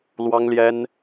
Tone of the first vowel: high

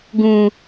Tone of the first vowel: low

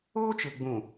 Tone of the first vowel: high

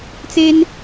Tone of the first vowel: high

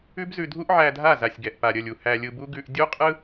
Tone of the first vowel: high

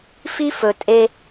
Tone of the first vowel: high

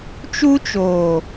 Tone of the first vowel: high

